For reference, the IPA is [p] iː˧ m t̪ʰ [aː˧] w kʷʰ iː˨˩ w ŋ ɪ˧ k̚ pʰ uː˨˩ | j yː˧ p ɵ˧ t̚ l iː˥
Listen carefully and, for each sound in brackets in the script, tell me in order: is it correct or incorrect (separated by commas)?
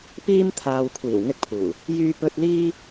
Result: correct, incorrect